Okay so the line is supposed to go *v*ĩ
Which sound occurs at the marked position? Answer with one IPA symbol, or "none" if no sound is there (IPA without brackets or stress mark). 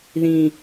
ð